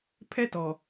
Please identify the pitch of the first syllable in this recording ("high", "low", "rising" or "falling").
high